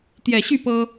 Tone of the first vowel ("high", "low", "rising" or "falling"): low